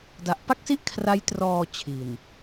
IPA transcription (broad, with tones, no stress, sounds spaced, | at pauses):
d a˨˩ ʔ p a˥˩ k̚ s i˥˩ ʔ kʰ r a˦˥ j t r ɔː˧ t͡ɕʰ i˨˩ n